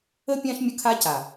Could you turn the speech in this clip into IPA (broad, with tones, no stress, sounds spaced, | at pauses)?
ə˦ pʲ ã˦ ʃ mʲ ə˦ kʰ a˦ c a˨